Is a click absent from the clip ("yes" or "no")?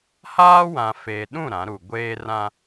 yes